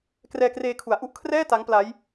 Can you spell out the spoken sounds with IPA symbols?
k r ɛː˧ k r eː˧ kʰ u˩˦ a̯ ʔ u˦˥ ʔ kʰ r ɛː˥˩ t a˦˥ ŋ p l a˦˥ j

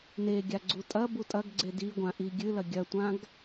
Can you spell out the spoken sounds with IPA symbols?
n e ɡʲ a ɡ͡ǀ u tʼ ɐ b u tʼ ɐ ɡ ɡ͡ǀ e d i ɡʷ ã ʔ i ɡʲ ɨ l ɐ ɡʲ ɐ tʷ ã ɡ

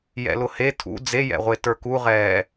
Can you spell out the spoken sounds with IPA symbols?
j ɛ̰ l ʊ h e tʰ ṵ d͡z e j ɛ̰ ʁʷ e t ə˞ k u ʁ ɛː

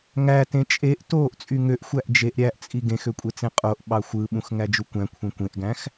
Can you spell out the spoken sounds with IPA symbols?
ŋ æ t ẽ t͡ʃʼ e ʔ t oː ʔ t͡sʼ y ŋ ø ʔ xʷ æ ʔ d͡ʒ e ʔ ɾʲ æ ʔ t͡sʼ i ɡ ẽ x ø kʷʼ e t͡s ẽ qʼ o ʔ ɓ ɑ xʷ ɯ ɓ ũ x ŋ æ d͡ʒ u kʷ æ̃ kʷʰ ẽ kʷ ẽ ʔ ɡ æ̃ x

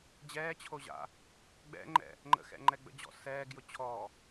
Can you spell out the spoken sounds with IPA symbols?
d͡ʑ ɛː t͡ɕʰ o ʑ a̰ | ɡ͡b ɛ̰ ŋ͡ǃ ɛ̰ | ŋ͡ǃ ə̰ x ɛ̰ ŋ͡ǃ ɛ ɡ͡b ə̰ d͡ʑ ɔ̰ s ɛː ɡ j ʊ t͡ɕʰ ɔ

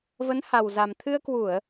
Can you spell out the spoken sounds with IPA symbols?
v ə˨˦ n h a˨˩ w z a˨˩ m t̪ʰ ɨ˧ ə̯ k w u˧˩˨ ə̯

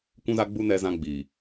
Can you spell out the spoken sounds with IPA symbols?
kʷ ũ˦ z a˦ ɡ͡b u˦ n ɛ˦ z ã˦ ɡ͡b i˨

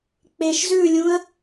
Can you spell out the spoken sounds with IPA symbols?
k͡p e ʃ z ʉ lʲ ũ ə̯

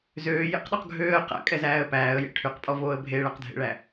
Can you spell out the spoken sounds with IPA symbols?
z øː j ḛ q ɗ ɔ q ɡʱ øː ə̯ q æ̰ kʼ ɛ z æː ə̯ p æː ə̯ j ḛ ʈʰ y q pʼ ɔ v oː ə̯ bʱ e ɭ æ q dʱ ḛ ɭ æ

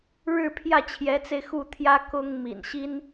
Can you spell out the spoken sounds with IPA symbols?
ɻ ɻ̩˥˧ pʰ j ä˥˩ t͡ɕʰ j ɛ˧˥ t͡s e˧ ɪ̯ x u˥˩ t̪ʰ j ä˥ k ʊ˥ ŋ m ḭ˨˩ n ɕ i˥ n

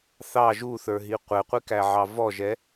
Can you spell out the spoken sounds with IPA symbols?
θ ɑ ʒ u θ ə˞ ɦ i qʷ ɛ qʷ i k æ ʕ ɑ v ɔ ʒ ɛ

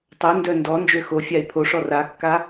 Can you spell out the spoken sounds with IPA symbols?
tˤ o n d œ n d ɔ n d͡ʒ ø x o fʲ a e̯ pʰ o ʂ ɔ r a kː a

